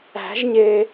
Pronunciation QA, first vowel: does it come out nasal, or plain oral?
oral